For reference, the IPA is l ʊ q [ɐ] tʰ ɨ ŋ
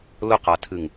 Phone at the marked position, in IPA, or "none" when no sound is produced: a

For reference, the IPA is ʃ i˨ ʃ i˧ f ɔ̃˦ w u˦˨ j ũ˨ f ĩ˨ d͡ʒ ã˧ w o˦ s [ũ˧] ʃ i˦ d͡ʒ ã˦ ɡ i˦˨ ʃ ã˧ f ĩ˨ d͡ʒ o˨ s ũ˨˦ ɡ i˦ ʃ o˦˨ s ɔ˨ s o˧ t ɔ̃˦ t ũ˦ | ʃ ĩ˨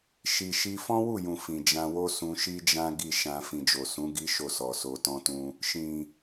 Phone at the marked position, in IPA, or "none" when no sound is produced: ũ˧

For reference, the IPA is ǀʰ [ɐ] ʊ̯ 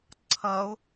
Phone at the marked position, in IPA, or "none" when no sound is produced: ɐ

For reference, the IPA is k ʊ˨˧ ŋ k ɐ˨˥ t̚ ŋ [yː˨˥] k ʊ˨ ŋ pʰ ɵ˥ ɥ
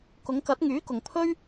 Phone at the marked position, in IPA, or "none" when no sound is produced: yː˨˥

